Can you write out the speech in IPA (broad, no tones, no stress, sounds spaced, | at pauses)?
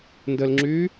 n d ə l ŋ͡ǁ yː